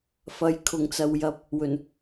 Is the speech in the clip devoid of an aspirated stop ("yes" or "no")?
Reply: no